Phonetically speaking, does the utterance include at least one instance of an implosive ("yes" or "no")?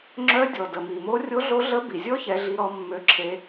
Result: no